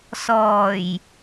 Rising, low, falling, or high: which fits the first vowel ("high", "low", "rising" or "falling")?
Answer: low